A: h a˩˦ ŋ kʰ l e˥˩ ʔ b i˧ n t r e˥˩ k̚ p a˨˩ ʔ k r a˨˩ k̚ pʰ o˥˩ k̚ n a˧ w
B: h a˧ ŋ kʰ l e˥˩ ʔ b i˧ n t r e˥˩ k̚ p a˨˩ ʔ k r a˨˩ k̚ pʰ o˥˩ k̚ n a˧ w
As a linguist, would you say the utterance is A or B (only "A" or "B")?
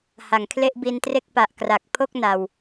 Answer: A